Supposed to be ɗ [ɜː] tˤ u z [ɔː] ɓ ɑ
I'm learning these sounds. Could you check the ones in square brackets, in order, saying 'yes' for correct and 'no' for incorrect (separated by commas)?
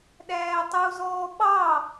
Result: no, yes